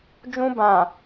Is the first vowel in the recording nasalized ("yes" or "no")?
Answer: yes